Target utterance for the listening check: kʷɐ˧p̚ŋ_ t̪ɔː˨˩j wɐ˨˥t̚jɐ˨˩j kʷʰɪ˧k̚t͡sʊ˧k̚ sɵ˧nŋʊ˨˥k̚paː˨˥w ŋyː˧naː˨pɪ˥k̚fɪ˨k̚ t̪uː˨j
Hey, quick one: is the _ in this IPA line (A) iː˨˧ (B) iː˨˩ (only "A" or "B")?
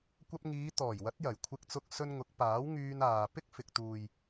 A